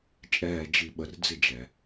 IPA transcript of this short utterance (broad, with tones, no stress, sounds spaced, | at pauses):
t͡ʃʼ ɛː˨ d͡ʒ i˨ ɓ ə˨ r d͡z ɪ˥˨ d͡ʒ ɛ˨